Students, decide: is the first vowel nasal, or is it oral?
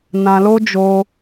nasal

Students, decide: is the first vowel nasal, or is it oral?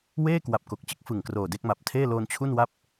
oral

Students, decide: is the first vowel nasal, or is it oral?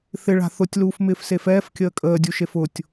oral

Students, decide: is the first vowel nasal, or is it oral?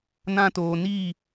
nasal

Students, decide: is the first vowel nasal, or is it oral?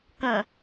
nasal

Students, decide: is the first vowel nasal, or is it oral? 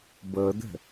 oral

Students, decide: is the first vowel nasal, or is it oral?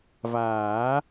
oral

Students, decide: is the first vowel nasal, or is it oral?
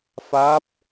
oral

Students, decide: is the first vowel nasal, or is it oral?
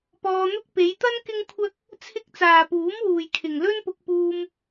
oral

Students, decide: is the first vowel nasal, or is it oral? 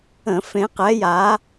nasal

